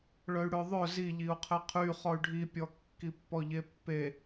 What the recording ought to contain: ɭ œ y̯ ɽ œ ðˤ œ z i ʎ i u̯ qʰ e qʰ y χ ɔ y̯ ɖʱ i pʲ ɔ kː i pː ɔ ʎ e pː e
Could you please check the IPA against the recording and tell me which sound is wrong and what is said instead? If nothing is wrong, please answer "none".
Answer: none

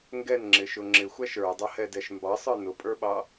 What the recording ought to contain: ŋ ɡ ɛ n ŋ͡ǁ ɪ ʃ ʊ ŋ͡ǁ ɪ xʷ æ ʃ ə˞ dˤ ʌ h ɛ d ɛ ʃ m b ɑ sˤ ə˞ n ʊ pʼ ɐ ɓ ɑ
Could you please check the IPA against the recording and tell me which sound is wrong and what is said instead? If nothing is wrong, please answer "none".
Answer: ɐ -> ə˞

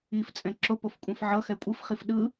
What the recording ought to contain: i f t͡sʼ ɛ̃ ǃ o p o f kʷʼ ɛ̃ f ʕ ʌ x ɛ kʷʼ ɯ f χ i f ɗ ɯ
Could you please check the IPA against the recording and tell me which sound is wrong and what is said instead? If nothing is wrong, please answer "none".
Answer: ǃ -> ǁ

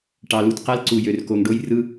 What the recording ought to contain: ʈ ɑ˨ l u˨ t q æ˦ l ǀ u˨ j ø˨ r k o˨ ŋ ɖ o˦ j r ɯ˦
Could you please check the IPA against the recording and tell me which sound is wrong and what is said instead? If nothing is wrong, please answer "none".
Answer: none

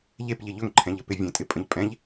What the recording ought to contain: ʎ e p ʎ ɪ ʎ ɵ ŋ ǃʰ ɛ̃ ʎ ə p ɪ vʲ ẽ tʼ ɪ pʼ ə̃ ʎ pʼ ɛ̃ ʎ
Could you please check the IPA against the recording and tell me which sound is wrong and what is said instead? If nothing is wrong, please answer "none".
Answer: none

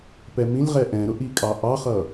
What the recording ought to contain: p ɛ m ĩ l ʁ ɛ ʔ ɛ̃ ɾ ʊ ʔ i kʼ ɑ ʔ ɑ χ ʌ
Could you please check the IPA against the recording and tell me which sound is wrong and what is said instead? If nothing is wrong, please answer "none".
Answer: none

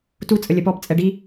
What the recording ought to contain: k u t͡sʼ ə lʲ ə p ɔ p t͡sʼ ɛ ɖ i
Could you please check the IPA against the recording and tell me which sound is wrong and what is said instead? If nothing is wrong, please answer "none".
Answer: k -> t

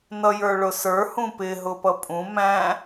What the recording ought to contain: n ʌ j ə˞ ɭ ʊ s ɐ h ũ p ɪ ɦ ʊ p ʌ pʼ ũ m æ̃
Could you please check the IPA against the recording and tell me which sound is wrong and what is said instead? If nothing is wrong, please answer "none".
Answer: ɐ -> ə˞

